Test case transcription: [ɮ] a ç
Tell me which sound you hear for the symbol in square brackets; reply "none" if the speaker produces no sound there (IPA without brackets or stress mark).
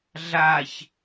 ɮ